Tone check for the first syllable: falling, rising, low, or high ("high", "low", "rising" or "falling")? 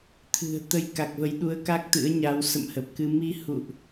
low